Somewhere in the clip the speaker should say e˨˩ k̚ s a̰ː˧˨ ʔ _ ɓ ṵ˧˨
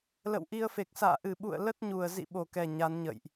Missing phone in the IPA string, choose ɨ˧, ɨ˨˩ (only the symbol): ɨ˨˩